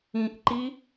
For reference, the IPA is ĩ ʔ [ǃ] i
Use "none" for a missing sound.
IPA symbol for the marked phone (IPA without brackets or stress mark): ǃ